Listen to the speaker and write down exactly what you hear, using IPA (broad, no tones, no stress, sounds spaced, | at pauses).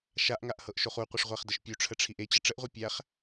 ʃ a ʔ ŋ a ʔ h ɤ ʔ ʃ o χ u qʷ ə ʂ ʁʷ æ χ d ə ʃ pʲ u ʈ͡ʂʰ ə ʈ͡ʂʰ i ʔ e t͡ɕ ə ʈ͡ʂ ə ʔ ʁʷ e pʲ æ χ